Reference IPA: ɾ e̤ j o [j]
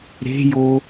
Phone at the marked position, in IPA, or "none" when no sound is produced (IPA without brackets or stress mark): none